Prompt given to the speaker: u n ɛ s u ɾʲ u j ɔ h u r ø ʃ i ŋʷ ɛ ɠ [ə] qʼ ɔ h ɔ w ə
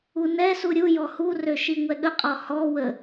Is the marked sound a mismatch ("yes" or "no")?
no